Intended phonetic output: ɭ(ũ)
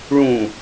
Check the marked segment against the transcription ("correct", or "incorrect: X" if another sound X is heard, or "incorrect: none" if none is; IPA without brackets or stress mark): correct